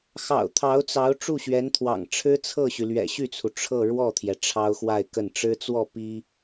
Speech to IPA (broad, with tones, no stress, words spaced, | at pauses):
xɑ̰˨˩ʊ̯t̪ʰɑ˧˥ʊ̯t͡sɑ˧˥ʊ̯ ʈ͡ʂu˥˩ɕɥɛ˧˥nt̪ʰwɑ̰˨˩ŋ ʈ͡ʂʰɻ̩˥t͡sʰɤ˥˩ɕy˩lɥɛ̰˨˩ ɕy˥˩t͡sʰu˩ ʈ͡ʂʰɤ˥˧ ɻwɔ˥˩t̪ʰjɛ˩ ʈ͡ʂʰɑ˥ʊ̯xwa˥˧ɪ̯kə˥˩n ʈ͡ʂɻ̩˥t͡swɔ˥˩ pi˥